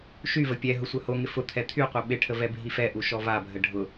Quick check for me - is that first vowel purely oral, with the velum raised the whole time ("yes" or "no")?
yes